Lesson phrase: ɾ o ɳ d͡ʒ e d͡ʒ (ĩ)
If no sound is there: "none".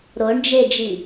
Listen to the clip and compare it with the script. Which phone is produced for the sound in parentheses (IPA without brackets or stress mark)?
i